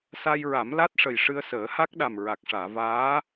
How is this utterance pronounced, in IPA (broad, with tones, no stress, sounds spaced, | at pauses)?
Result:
s a˧ j ɹ a˨˩˦ m l a˦˥ t̚ ʂ ə˨˩ j ʂ ɨ˧ ə̯ s əː˨˩˦ h a˦˥ k̚ ɗ a˨˩ m ɹ a˨˩ k̚ ʂ aː˨˩˨ v aː˧˥